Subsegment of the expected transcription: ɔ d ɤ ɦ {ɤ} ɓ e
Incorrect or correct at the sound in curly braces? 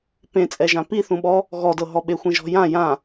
incorrect: ɔ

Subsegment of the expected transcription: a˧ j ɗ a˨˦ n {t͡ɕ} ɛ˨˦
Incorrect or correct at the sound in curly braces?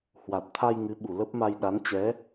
correct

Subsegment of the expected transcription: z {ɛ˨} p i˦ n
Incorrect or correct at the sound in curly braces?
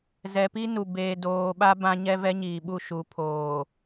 correct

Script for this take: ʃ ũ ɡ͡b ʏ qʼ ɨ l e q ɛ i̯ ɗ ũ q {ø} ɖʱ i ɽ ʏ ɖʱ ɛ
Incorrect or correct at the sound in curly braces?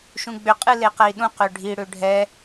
correct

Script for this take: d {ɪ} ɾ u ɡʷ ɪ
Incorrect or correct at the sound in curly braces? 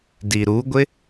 incorrect: i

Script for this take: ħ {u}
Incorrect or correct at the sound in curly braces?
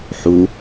correct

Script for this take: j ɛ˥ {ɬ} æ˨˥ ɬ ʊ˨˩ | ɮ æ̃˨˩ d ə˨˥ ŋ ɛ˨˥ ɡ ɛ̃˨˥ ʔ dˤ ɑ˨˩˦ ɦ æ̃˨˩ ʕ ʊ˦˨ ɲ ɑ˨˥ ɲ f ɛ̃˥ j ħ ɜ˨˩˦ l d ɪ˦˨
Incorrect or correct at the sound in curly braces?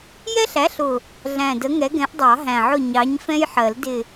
correct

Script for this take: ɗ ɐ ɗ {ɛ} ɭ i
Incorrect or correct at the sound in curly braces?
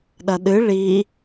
incorrect: ɨ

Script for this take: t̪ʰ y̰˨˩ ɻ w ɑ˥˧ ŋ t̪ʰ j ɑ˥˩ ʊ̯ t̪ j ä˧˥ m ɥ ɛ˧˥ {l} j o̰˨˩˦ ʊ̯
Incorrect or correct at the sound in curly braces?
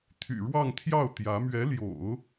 correct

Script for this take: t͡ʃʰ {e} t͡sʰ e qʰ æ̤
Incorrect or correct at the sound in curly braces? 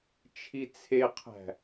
incorrect: i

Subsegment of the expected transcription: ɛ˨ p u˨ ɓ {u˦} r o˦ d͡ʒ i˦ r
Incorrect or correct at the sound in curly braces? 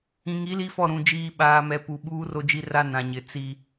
incorrect: uː˦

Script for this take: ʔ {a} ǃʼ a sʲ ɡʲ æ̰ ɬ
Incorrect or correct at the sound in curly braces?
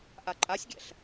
correct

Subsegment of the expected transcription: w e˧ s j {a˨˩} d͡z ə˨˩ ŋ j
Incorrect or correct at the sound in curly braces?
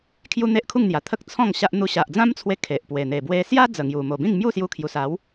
incorrect: a˦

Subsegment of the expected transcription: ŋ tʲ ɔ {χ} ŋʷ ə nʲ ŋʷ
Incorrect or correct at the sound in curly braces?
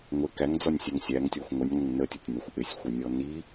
incorrect: xʷ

